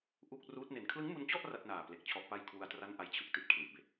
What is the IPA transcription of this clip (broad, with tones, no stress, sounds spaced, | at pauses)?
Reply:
ʔ u˥˩ k̚ r uː˦˥ t̚ n e˨˩ n kʰ l ɯ˦˥ ŋ m u˧ n t͡ɕ ɔ˥˩ ʔ r a˥˩ t̚ n aː˨˩ p l e˨˩ k̚ t͡ɕʰ ɔ˦˥ ʔ p a˥˩ j kʰ w u˧ a̯ t r a˥˩ n ʔ a˦˥ j t͡ɕʰ ɯ˥˩ k̚ t i˦˥ t̚ kʰ l i˨˩ ʔ b e˨˩ k̚